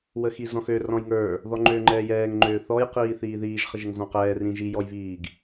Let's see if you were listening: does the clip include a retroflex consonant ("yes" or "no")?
no